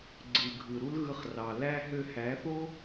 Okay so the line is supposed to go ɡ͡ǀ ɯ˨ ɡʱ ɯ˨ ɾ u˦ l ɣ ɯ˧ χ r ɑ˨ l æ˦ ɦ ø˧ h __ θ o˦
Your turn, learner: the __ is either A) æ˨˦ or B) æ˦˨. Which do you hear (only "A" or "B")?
A